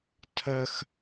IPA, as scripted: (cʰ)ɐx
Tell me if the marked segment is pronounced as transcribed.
no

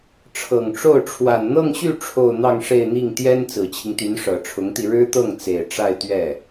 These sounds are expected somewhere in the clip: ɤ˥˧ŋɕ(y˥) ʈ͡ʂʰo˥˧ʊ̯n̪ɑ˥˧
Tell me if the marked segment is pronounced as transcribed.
no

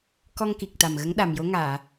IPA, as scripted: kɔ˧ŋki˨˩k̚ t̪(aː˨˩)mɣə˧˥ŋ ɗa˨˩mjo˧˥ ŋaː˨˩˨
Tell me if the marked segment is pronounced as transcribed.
no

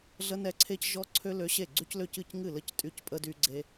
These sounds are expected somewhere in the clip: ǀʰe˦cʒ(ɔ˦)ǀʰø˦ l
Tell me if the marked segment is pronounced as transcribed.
yes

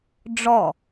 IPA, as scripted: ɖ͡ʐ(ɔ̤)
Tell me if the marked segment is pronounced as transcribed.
no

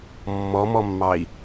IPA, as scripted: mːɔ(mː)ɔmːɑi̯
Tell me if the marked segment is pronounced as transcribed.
no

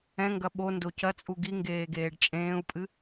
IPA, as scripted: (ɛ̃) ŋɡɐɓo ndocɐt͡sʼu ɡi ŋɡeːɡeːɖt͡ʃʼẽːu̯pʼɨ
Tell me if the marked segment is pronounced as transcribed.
yes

